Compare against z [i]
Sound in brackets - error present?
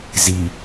no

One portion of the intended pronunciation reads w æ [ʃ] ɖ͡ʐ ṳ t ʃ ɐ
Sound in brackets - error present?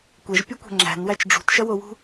yes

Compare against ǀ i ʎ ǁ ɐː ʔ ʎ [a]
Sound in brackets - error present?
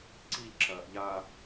no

